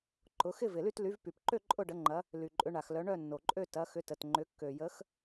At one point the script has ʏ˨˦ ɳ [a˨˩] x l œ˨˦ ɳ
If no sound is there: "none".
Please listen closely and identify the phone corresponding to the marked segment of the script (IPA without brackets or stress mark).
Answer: a˨˩